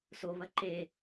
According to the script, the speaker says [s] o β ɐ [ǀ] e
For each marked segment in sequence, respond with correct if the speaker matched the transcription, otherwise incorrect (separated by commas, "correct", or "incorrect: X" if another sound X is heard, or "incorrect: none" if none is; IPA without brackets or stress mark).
correct, incorrect: ǃ